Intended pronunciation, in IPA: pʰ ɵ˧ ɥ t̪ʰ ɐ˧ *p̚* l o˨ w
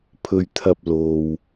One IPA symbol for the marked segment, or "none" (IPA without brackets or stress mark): p̚